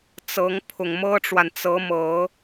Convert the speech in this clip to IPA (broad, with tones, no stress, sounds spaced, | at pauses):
t͡s ɤ˧˥ ŋ pʰ ʊ˨˩ ŋ m ɤ˥ ʈ͡ʂ w a˨ n t͡s ɤ˧˥ m ɤ˨˩˦